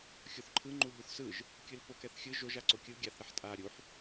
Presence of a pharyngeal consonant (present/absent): present